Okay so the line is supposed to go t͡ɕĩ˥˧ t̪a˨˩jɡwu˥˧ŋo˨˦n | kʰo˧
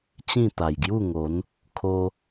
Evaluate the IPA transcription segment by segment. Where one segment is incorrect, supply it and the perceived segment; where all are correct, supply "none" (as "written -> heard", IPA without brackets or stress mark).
w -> j